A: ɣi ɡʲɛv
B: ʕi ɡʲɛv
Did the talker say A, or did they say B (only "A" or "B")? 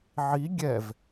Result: B